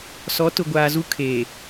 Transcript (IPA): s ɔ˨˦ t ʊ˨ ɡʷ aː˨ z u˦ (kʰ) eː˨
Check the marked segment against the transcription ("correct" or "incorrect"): correct